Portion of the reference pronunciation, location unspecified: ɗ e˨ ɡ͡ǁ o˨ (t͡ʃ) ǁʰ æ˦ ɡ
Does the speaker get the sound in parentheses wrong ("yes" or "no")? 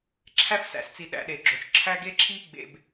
no